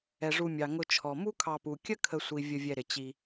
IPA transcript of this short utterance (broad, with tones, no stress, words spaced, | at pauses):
ɛ˩ʐu˨mʲɑ˩ ŋʊ˨t͡ʃʰɔ˩ mu˦ kʰɑ˨pu˩kʲə˦ kʰə˨sʷi˩ vʲə˨vʲɛ˨ɾɪ˩ t͡ɕi˨